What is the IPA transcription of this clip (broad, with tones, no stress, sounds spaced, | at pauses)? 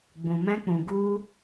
ɡ͡b ũ˨ m ɛ̃˧ k͡p ũ˨ ɡ u˧